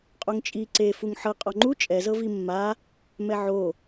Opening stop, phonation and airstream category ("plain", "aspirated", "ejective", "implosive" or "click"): ejective